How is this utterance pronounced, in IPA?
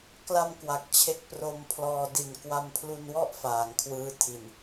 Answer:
k l a˧ m k w a˨˩ k̚ t͡ɕʰ e˥˩ k̚ p r o˧ m pʰ l ɔː˧ d i˨˩ n k w a˧ m pʰ l u˧ n w ɔ˥˩ ʔ f aː˩˦ ŋ kʰ w ɯː˦˥ tʰ i˨˩ n

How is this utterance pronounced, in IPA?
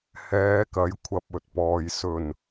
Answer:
h ɛː˨˧ k ɐ˨˥ j kʷʰ ɐ˧ p̚ ɵ˨ t̚ p ɔː˨ j s ɵ˨˩ n

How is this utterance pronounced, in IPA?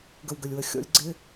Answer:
ɡ ə˨ w ɡ ə˨ lʲ w ə˨ xʲ ɔ̰˧ lʲ ɡ͡ǀ ɪ˧

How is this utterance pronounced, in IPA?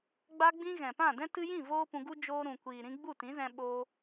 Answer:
ɡ͡b a˧ ɡ͡b ĩ˧ ɣ ɛ̃˨ p ã˦˨ d ɛ̃˦ t ɨ˧ j ĩ˦˨ v oː˦ p ũ˧ ɡ u˦ d͡ʒ oː˧ ɾ ũ˨ kʷ iː˨ ɾ ĩ˧ ɡ͡b u˦˨ t ĩ˨˦ z ɛ̃˧ ɓ o˧

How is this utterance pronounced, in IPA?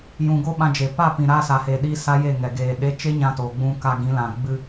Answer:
j ũ˨ ɡ o˦ ɓ ã˧ d͡ʒ e˨ p a˦˨ p ĩ˨ ɾ aː˧ s a˨ h eː˨ ɗ i˦ s a˦ j e˦˨ ŋ ɛ˨ ɡ eː˨ ɗ e˧ t͡ʃ e˦ ɲ ã˧ t oː˨ ɡ͡b ũ˧ k a˧ ɡ ĩ˨˦ l ã˨ ɡ͡b ɨ˧

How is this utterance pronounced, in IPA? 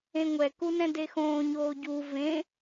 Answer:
ẽ ŋʷ ɛ k u n ɛ̃ d e x õː ɲ oː ɟ u v ẽ

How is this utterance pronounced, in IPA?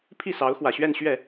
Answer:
pʰ i˥˩ s ɑ˧˥ ʊ̯ x w ä˨˩ ɕ ɥ ɛ˥˧ n ɕ ɥ ɛ˥˩

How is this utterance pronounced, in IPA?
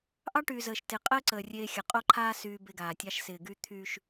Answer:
ʔ ɑ˦ ʈ yː˨ z əː˨ ʃ t ɪ˨ qʼ əː˦ ǀ əː˨ rʲ eː˦ xʲ ɐ˨ qʼ o˦ ǃʰ aː˦ s yː˦ b e˦ ɡ aː˨ tʲ ɑ˦ ʃ s ɪː˨ ɡ yː˦ t̪ʰ yː˦ ʃ

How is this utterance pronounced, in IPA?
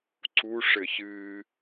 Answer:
ǀ u ʂ ɘ ç ɨː

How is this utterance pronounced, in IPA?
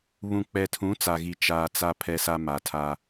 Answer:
β ũ˨ k͡p ɛ˨ tʰ ũ˨˦ t͡s a˨ ɣ i˦ t͡ʃ aː˦ t͡s a˦ pʰ ɛ˦ s a˦ m a˨ tʰ a˦

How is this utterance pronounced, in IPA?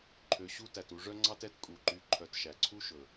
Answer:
ǃʰ ø˨ ɕ u˥ t æ˩ t u˨ ʐ œ˥ ŋ͡ǀ ɑ˥ t ɛ˦ t kʼ u˩ ǃ y˨ ǃʰ œ˨ t ʃ æ˩ ǀʰ u˥ ʃ ɵ˩

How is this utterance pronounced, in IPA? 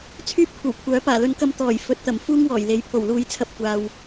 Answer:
t͡sʰ yː˥ p̚ kʷʰ ɐ˨˩ w kʷʰ œː˨˥ p aː˨˩ l ɵ˨˧ n k ɐ˧ m t̪ ɔː˨˩ j f ɵ˨˥ t̚ t̪ ɐ˨˩ m f uː˥ ŋ w ɔː˨˩ j l e˨˥ j pʰ o˨˩ w l uː˧ j t͡sʰ ɐ˧ p̚ kʷ aː˨ w

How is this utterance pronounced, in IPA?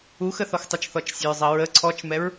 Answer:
u x ə θ ɔ x tˤ ə t͡ʃ θ ɔ t͡ʃ sʲ ə ɹ zˤ ɐ ɹ ə ǀʰ ɔ t͡ʃ m ɛ ɹ

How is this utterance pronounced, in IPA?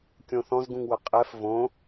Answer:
kʲ õ θ ɔ̃ z ɡ ũ ŋ w ə qʼ ɛ f v õ

